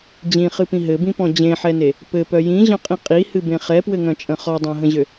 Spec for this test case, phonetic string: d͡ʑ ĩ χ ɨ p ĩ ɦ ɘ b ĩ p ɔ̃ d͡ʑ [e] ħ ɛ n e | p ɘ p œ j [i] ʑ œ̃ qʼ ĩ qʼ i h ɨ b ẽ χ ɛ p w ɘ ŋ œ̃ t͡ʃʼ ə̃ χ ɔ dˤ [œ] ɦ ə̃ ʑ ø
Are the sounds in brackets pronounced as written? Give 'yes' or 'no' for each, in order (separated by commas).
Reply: no, no, no